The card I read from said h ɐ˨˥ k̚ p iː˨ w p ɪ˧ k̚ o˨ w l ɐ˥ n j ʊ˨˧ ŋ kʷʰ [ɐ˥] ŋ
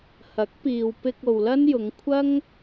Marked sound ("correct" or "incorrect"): correct